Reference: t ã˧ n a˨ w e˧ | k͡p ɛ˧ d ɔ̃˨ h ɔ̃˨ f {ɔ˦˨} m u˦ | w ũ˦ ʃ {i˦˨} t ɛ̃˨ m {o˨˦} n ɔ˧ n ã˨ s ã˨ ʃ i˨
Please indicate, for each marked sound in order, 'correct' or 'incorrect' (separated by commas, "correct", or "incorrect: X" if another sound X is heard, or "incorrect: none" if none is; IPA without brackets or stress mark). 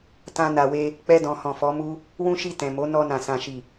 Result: incorrect: ɔ˨˦, correct, correct